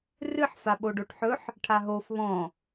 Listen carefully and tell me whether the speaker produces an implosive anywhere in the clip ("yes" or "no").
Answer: yes